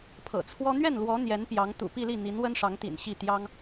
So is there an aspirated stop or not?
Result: yes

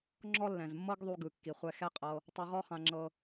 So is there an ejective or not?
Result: yes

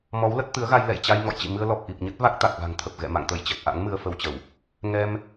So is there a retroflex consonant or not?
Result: no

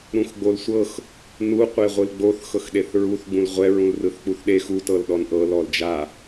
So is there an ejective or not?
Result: no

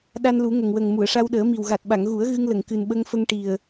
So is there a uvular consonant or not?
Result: no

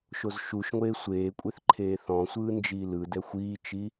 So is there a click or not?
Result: yes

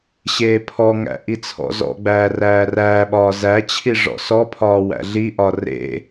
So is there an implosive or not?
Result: yes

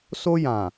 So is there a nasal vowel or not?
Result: yes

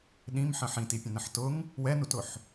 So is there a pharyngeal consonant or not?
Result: yes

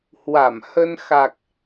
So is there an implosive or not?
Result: no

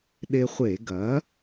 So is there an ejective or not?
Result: no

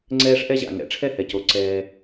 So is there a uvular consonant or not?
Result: no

